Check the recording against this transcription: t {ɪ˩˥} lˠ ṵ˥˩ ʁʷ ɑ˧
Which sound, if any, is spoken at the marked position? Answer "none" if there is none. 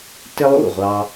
ɪ˥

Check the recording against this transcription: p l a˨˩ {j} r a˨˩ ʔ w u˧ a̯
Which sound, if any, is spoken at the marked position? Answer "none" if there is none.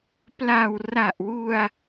w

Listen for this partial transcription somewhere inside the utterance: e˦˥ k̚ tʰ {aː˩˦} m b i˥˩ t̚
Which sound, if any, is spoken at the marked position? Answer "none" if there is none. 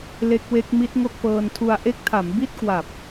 a˩˦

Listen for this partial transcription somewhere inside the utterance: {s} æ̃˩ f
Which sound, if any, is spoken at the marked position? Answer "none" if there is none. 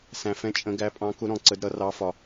s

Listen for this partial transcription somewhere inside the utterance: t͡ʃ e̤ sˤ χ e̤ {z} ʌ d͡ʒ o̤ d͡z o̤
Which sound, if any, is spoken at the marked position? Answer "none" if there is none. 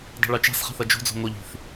θ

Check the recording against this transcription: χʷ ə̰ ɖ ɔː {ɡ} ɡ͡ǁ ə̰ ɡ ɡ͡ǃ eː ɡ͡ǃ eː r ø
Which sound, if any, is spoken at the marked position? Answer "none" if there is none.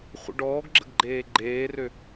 ɡ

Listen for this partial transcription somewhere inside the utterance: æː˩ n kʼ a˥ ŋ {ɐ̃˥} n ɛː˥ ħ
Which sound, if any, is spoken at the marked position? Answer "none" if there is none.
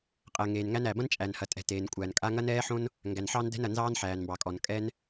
ɐ˥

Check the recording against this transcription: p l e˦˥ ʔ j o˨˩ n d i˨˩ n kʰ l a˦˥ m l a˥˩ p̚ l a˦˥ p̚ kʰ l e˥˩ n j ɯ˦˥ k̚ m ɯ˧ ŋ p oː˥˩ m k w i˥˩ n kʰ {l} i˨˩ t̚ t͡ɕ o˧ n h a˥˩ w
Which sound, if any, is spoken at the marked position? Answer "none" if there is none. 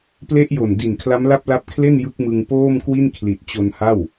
l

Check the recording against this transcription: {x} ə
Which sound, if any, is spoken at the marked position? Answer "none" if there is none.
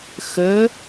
x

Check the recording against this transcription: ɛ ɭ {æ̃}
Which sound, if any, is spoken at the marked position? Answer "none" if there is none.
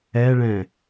ɛ̃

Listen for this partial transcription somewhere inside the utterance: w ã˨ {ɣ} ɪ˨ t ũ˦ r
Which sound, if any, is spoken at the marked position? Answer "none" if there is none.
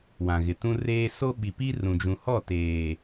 ɣ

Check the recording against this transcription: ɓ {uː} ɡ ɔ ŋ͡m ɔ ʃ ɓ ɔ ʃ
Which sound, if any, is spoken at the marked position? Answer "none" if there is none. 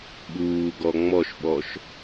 uː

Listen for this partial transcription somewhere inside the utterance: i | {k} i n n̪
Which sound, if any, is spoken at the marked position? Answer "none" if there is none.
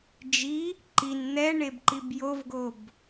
ǃ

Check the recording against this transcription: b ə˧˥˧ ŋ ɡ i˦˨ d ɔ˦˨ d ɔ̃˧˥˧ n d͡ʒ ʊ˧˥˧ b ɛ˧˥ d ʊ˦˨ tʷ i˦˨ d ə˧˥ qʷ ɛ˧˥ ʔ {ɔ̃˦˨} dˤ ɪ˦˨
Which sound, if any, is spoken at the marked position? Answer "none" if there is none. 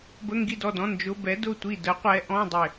ɔ̃˧˥˧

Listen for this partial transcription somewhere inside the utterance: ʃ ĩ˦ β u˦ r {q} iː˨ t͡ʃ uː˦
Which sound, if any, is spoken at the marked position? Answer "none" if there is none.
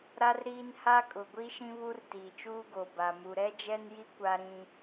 t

